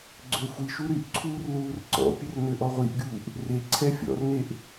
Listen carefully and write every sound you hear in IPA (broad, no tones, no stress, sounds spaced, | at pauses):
ɡ͡ǀ ø xʷ i ʃ u ɾ y ʔ ǀʰ uː r l uː r ǀ ɔ̰ pʲ ə r n ø ʔ ɔ ʁʷ i ʔ ɡʲ uː ʔ | r e ǀʰ ɛ fʲ ɔ̰ r n e ʔ